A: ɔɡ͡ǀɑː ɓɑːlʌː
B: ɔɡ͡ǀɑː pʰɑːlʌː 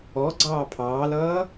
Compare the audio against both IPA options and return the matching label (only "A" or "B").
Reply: B